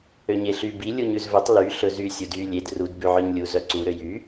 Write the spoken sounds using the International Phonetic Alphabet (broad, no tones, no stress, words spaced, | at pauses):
øɲeɬy bi lʲuɲʉzvɵtˤ ly ɬɵzy sʲudy lʲed rud bʉʕœɲlʲu zœǀu ɾøjy